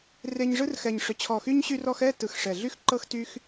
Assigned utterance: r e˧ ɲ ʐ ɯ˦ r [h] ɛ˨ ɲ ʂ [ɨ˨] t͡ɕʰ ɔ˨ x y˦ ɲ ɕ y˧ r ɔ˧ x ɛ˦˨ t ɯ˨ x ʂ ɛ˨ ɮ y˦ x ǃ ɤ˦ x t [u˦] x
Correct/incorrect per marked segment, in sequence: incorrect, incorrect, incorrect

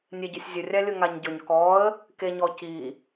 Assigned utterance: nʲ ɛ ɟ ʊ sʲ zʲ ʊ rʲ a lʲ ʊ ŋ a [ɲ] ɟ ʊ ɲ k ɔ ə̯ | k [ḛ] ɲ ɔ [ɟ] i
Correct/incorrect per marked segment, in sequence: correct, incorrect, incorrect

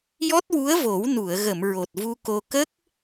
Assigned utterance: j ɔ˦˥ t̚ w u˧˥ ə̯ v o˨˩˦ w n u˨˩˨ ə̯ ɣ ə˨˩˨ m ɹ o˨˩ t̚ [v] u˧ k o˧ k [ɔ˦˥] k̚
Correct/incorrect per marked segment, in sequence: correct, incorrect

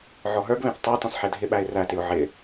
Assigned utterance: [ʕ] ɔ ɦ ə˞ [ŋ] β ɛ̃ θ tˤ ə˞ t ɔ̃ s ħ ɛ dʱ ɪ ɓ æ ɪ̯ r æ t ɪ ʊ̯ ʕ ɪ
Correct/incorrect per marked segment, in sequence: correct, incorrect

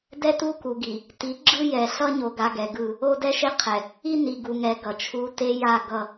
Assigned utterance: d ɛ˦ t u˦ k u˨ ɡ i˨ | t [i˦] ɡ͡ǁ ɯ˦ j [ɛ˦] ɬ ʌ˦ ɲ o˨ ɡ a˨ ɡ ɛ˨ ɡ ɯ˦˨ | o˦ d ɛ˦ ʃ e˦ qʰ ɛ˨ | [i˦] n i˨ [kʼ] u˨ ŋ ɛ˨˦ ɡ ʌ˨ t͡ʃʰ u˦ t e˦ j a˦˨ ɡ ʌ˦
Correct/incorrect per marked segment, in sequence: incorrect, incorrect, correct, incorrect

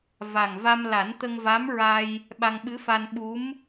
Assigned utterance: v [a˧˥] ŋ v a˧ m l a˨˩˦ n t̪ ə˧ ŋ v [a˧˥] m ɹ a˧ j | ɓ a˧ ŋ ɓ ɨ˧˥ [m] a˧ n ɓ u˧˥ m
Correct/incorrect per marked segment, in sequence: incorrect, correct, incorrect

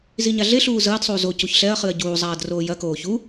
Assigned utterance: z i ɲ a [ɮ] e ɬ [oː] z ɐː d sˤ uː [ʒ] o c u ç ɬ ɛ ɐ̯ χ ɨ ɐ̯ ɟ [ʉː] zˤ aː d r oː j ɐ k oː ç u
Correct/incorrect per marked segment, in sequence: correct, incorrect, incorrect, incorrect

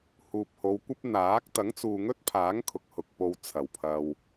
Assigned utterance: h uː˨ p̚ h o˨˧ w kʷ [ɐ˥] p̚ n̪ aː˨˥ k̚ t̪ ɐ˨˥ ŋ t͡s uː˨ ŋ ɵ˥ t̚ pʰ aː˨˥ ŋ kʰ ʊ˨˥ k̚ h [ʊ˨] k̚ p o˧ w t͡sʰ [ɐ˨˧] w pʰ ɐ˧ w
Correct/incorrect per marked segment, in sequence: correct, correct, incorrect

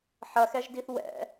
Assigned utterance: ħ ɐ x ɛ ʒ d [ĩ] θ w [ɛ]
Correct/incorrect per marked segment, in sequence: incorrect, incorrect

